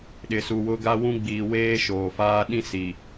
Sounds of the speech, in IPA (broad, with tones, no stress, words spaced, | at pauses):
ɗɪ˨su˨ wʊ˨ ɡa˦wũ˦ɡ͡biː˨ weː˦ʃoː˨faː˦ ɗĩ˦si˨